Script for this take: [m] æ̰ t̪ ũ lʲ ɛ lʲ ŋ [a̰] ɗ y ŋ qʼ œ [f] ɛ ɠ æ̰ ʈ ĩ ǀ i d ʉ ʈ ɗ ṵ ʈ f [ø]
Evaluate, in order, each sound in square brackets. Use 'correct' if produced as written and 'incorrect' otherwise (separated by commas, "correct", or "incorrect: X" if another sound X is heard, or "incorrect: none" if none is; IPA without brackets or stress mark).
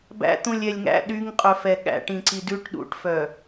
incorrect: b, incorrect: æ̰, correct, incorrect: œ